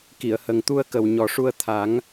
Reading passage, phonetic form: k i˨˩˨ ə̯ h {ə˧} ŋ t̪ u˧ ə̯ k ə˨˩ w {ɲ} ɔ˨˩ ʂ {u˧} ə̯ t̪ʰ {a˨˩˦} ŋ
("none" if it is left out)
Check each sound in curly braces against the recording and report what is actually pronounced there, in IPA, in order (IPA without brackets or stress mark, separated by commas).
ə˨˩, ɲ, u˧, a˨˩˦